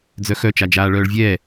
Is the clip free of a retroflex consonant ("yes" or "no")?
no